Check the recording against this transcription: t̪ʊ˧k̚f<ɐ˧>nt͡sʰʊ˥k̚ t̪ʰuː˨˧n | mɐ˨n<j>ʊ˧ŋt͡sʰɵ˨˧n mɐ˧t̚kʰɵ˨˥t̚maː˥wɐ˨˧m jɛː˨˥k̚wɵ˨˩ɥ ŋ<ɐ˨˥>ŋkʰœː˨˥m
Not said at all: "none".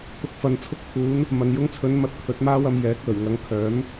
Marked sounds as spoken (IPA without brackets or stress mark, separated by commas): ɐ˧, j, ɐ˨˧